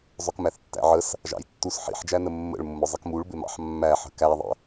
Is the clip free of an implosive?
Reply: yes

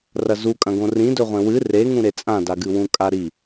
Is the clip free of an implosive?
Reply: yes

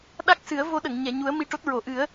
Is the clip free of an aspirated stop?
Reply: yes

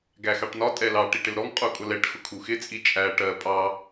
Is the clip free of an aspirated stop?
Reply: no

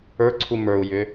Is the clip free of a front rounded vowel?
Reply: no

